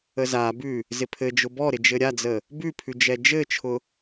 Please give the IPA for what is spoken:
ə z a b ʉ | z ɪ pʰ ɘ d͡ʒ ʊ b ɔ ɾ ɪ d͡ʒ ɘ ɾʲ a d͡z ə | b ʉ pʰ ʉ d͡ʒ ɛ d͡ʒ ɘ t͡ʃʰ ʊ

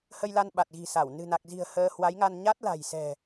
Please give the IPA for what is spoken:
h ə˧ j l a˧ n ɓ a˨˩ t̚ ɣ i̤˨˩ s a˧˩ w n ɨ̤˨˩ n a˨˩ k̚ z i̤˨˩ ə̯ h əː˧ h w a˨˦ j ŋ a˧ n ɲ a˦˥ t̚ l a̤˨˩ j s ɛ̤˨˩

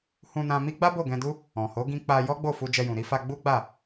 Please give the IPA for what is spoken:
h ũ˧ n ã˧ m i˦ ɡ͡b a˦ b o˦˨ ɡ ɛ̃˧ d u˦ | ɔ̃˨ h o˨˦ ɡ ĩ˧ k͡p a˧ j ɔ˦ ɡ͡b o˦˨ f u˧ d͡ʒ ɛ˧ j ũ˨ ɾ i˨˦ f a˧ ɡ͡b u˦ ɡ͡b a˦˨

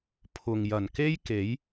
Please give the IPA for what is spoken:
pʰ ʊ˨ ŋ j ɐ˨˩ n k e˥ j k e˨˥ j

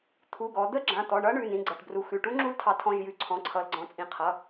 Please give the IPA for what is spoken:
t̪ʰ u˩˧˩ ɡ ɔ˩˧ d̪ ə˧˥ ɡ͡ǁ ã˩˧˩ t̪ ɔ˩˧˩ ɳ ʌ˧˥ ɳ ʉ˩˧˩ n ĩ˩˧˩ ɡ͡ǀ ʌ˩˧˩ ʈ b r u˩˧ x ʉ˩˧˩ ʈ u˧˥ ŋ͡ǁ u˧˥ l tʰ ɑ˩˧ tʰ ɔ̃˩˧˩ ʒ j ʉ˩˧˩ ǀʰ ɔ̃˩˧˩ ǀʰ ʌ˩˧ l ɡ͡ǀ ɔ̃˩˧ t͡sʼ ĩ˩˧ qʰ ʌ˩˧˩

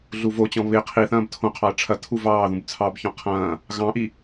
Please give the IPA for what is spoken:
ɮ u v o t͡ɕ ɔ̃ β ɪ qʰ i θ ɐ̃ː b tʰ õ qʰ ɑ ɐ̯ ʈ͡ʂʰ ɐ tʰ u v ɑː ð ũ b t͡sʰ ɑ b ç ɔ̃ qʰ ɐ̃ː | ɣ ɑ̃ ʔ i

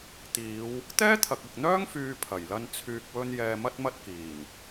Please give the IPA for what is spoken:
t̪ iː˨˧ w | t̪ ɛː˥ t̪ʰ ɐ˨ k̚ ɪ˨ k̚ n̪ œː˥ ŋ f yː˧ pʰ ɐ˨˩ j l ɐ˧ n t͡sʰ yː˨ k̚ w ɵ˧ n j ɛː˧ m ɐ˥ t̚ m ɐ˥ t̚ k iː˨˩ n

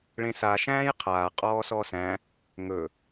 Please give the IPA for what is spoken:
ɭ ẽ s a ʃ æ̃ː j qʰ aː qʼ ɔː s ɔ s æ̃ | ŋ ɵ

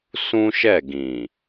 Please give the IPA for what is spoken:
s ũ˦ ʃ ɛ˦˨ ɡ ĩ˨

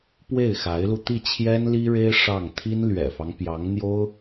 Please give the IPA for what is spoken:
p w e˥˩ ɪ̯ x a˧˥ ɪ̯ l u˧ t̪ i˥˩ t͡ɕʰ j ɛ˥ n l i˥ ɻ e˥ ɪ̯ ʂ ɑ˥˩ ŋ t̪ʰ i˥ n l ɥ ɛ̰˨˩ f ɑ˦ ŋ p j ɑ˧˥ ŋ n̪ j o˥ ʊ̯

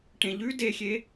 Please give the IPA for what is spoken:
ʈ ẽ ʎ ʉ d e xʲ e

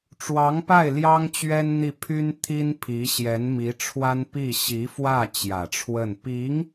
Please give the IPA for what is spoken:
ʈ͡ʂ w ɑ˧˥ ŋ p a˥˩ ɪ̯ l j ɑ˥ ŋ t͡ɕ ɥ ɛ˥ n n̪ i˥˩ pʰ y˥ n t̪ʰ i˥ n pʰ i˧˥ ɕ j ɛ˧˥ n m i˧˥ ʈ͡ʂʰ w a˥ n p i˥˩ ɕ i˧˥ f w ä˥˩ t͡ɕ j ä˨˩ ʈ͡ʂʰ w ə˥˩ n p i˧˥ ŋ

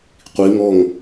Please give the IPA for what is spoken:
qʷ i˩˧ ŋ ɔ˧˩ ŋ

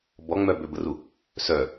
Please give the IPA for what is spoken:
b ɔ ŋ͡m œ b ø b ə r u | s œ

